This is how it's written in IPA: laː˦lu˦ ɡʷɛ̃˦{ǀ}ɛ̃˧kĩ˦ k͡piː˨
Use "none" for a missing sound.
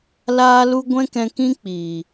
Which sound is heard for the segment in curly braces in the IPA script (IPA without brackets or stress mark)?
k